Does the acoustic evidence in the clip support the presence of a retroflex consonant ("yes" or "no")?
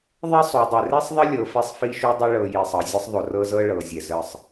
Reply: yes